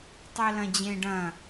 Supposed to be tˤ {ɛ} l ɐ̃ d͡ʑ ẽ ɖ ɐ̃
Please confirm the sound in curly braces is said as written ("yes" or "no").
yes